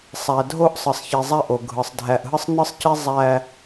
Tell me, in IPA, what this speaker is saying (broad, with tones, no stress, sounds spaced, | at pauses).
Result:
sˤ æ˨ dʱ o˦ ʔ sˤ ɯ˨ sˤ ç i˨ zˤ æ˦ ʔ o˨ ɡʱ ɯ˨ sˤ dʱ æ˨ ʔ ɦ ɯ˦ sˤ n ɯ˦ sˤ c i˦ zˤ æ˦